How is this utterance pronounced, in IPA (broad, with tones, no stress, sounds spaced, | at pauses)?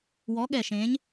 w ɔ˨˥ ɠ ɛ˧˩ ʃ ẽ˨˥ ɲ